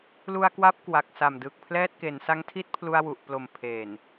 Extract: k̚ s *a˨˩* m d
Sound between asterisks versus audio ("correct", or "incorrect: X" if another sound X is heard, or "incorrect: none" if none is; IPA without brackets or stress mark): correct